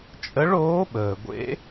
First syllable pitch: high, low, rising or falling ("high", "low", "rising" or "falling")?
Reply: rising